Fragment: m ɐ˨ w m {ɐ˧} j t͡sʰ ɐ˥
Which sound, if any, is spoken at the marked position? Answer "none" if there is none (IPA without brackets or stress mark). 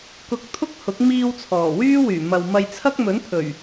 ɐ˧